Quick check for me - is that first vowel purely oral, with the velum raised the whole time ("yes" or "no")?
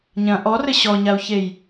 no